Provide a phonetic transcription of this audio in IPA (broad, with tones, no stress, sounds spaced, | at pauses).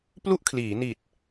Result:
p l u˥˩ ʔ kʰ l iː˩˦ n i˨˩ t̚